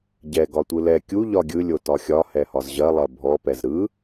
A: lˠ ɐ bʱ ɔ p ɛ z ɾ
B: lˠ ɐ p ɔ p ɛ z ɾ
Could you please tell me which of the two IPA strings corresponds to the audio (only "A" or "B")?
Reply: A